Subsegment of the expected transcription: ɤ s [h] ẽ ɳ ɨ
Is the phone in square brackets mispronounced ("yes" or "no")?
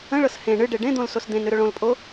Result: no